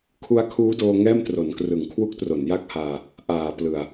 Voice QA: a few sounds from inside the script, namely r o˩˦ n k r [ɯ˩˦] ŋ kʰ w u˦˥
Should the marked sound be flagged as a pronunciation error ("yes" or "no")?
no